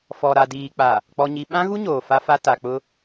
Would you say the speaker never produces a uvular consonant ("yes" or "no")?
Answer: yes